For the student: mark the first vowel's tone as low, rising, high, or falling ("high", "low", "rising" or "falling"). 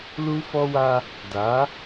high